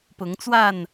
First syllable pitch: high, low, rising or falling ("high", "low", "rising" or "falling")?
rising